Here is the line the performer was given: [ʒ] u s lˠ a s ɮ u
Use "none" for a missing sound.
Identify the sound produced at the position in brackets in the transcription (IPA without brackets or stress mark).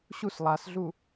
ɕ